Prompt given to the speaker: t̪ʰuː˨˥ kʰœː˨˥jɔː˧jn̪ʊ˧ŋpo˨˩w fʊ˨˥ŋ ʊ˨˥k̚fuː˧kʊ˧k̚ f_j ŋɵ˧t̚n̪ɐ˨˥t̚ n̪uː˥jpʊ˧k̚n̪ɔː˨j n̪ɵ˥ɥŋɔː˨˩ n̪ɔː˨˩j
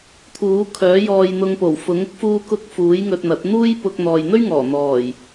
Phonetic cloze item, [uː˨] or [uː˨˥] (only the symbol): uː˨˥